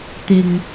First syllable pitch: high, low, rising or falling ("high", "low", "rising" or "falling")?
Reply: low